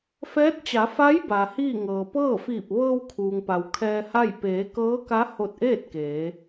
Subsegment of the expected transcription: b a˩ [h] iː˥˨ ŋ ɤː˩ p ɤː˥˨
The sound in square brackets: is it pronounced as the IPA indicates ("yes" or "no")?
yes